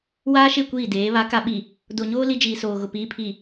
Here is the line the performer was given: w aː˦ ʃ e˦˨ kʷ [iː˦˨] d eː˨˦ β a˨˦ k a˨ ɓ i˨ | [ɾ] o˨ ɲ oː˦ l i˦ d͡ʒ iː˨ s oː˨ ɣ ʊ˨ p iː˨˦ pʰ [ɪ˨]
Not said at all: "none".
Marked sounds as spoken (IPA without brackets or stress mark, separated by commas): iː˦˨, d, i˨